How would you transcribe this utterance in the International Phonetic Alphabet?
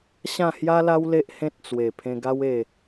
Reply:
ɕ ã˥˧ h j a˦ l a˦ w l e˦ ʔ h ẽ˦ t̚ t͡s w e˨˩ pʰ ẽ˧ ɡ a˦ w e˥˧

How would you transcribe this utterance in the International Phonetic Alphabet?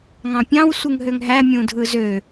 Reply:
ŋ ɑ̃ pʲ ɑ̃ w sʷ ɯ ŋ ɦ ø ŋ ɦ æ mʲ ũ dʱ ɯ z ø

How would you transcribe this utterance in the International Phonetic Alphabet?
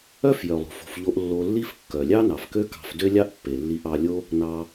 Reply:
œ˦ f j œ˨ lˠ o̤˨ f o̤˧ f ʎ o˦ ʔ lː o˧ lː i˦ f kː œ˨ lʲ ɑ˦ n ɑ˨ f k ø˦ k ɑ̤˧ f d ø˦ lʲ ɑ˦ ʔ pː e˨ lː i˧ ʔ ɑ˧ lʲ o˦ | n ɑ˧

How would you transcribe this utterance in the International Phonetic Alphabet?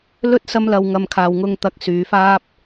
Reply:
l ɵ˥ t̚ s ɐ˧ m l ɐ˨ w ŋ ɐ˨ m kʰ aː˨ w ŋ ʊ˧ ŋ t̪ ɐ˧ k̚ s yː˨˧ f aː˥ p̚

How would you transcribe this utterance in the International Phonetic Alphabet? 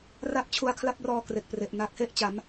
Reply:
r a˥˩ p̚ t͡ɕʰ u˧ a̯ kʰ l a˥˩ p̚ r ɔː˧ k r e˨˩ k̚ p r e˨˩ ʔ n a˦˥ k̚ h e˥˩ ʔ t͡ɕ a˩˦ m

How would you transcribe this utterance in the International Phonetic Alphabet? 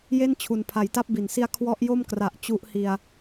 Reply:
j e˥˩ n t͡ɕʰ u˨˩ n pʰ a˩˦ j t a˦˥ p̚ b i˨˩ n s i˦˥ a̯ kʰ w ɔ˦˥ ʔ j o˥˩ m k r a˨˩ ʔ t͡ɕ u˦˥ ʔ h i˧ a̯

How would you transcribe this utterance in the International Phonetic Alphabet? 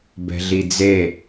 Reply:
b ɛ̤ ɮ i d͡z e

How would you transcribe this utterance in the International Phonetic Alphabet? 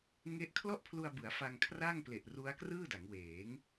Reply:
ŋ e˥˩ ʔ kʰ l ɔ˥˩ ʔ pʰ l u˧ a̯ b ɯ˩˦ a̯ f a˧ ŋ kʰ r a˥˩ ŋ p l e˨˩ ʔ r u˦˥ a̯ k r ɯː˥˩ d a˩˦ ŋ w eː˩˦ ŋ

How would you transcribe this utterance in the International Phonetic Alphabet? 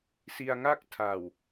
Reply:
s i˧ a̯ ŋ a˥˩ k̚ tʰ a˨˩ w

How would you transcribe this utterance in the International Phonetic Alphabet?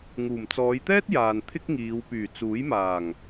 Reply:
ŋ uː˨˩ m t͡s ɔː˨˧ j t̪ ɛː˥ t̚ j aː˨ n t̪ʰ ɪ˥ k̚ ŋ iː˨˧ w p yː˨˩ t͡s uː˨˥ j m aː˨˩ ŋ

